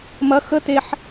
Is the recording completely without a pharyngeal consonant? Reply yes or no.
no